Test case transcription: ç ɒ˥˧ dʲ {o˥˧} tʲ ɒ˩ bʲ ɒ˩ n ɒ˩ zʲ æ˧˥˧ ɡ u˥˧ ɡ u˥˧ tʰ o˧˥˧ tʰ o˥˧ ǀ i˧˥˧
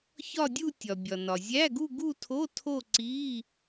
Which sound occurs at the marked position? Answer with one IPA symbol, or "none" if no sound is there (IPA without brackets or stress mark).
u˥˧